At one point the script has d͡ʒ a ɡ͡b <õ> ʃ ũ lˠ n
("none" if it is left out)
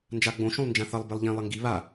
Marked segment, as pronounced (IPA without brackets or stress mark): õ